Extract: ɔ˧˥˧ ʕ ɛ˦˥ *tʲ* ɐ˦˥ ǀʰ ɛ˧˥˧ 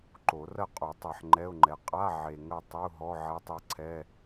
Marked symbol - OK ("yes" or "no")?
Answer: no